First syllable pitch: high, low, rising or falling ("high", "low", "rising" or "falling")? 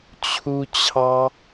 high